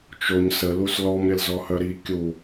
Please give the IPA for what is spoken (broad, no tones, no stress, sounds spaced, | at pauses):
t͡ʃ o ɲ s ə l u s l ɔ m ɾʲ ə l z ɔ h œ ɾ i kʲ u